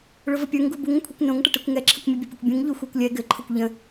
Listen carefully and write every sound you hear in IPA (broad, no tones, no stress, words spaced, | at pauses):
ɭʊvəpʲə˞ŋ ɡubuŋə̃kʷʰikʷ nõŋʈəʈɛkʷ ŋɛǁʰəkʷmʲə bʲəpʲɘkʷbʲũŋ ʎuxʷə˞kʷlʲɛ ɡɘǃʰʊkʷ ʎə̃